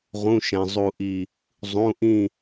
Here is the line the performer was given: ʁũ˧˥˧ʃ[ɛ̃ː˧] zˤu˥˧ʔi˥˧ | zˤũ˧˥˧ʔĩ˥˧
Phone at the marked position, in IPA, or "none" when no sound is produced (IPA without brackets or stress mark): ɛ̃˧